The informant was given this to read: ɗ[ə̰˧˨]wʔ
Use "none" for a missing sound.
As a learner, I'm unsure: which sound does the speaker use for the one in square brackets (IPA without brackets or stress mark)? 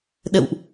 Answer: ə̰˧˨